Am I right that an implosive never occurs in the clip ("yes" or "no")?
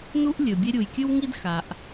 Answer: yes